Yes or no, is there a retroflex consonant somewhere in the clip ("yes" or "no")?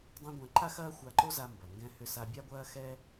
no